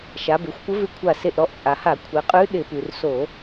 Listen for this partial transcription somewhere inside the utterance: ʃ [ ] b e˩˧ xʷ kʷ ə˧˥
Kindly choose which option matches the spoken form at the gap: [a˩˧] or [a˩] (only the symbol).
a˩˧